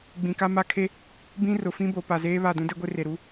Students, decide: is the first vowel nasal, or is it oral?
nasal